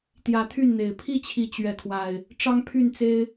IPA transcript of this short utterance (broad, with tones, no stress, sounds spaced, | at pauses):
t̪ j ä˨˦ t̪ʰ y˥˨ n n̪ e˨˩ ɪ̯ pʰ i˥˨ t͡ɕʰ i˨˦ t͡ɕ ɥ ɛ˨˦ kʰ w a˨˩ ɪ̯ | ʈ͡ʂ ɑ˦ ŋ pʰ y˥˨ n t͡s e˦ ɪ̯